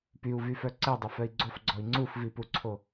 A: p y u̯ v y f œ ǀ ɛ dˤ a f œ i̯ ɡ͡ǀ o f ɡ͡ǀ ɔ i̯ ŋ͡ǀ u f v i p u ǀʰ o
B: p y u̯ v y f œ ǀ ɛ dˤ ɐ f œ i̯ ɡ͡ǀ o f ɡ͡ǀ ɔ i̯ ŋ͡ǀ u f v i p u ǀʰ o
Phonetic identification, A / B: A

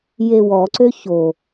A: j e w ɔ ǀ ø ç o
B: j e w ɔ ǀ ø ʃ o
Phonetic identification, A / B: A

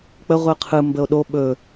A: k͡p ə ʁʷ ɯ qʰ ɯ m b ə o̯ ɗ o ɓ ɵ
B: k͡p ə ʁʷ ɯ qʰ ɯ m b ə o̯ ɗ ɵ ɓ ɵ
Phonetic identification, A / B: A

